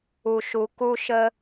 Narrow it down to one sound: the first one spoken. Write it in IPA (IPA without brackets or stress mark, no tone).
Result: u